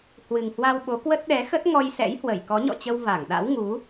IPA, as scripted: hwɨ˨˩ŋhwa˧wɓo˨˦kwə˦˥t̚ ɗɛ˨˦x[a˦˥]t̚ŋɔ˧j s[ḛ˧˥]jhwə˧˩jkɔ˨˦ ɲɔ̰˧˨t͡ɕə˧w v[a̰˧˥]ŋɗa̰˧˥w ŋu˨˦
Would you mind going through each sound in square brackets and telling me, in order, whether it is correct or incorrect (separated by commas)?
incorrect, incorrect, incorrect